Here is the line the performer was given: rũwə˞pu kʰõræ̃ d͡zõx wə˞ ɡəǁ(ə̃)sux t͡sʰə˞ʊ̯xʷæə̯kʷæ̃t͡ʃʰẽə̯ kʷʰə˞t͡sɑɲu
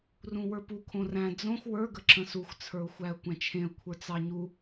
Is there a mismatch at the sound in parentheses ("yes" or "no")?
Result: no